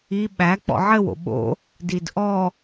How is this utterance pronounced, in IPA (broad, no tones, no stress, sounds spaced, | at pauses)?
i ɓ æ k͡p ɔ̰ ʕ ɘ w o̰ ɓ o̰ | d i d ʔ ɔ